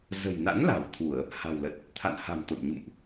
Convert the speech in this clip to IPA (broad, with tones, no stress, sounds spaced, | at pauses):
z ə̤˨˩ j n a̰˧˥ n l a̤˨˩ w t̪ʰ u˧˩˨ ə̯ | h a̤˨˩ w l ə˨˩ t̚ | t̪ʰ a̰˧˨ n h a̤˨˩ m t̪ o̰˧˨ n ɲ ṵ˧˨ m ʔ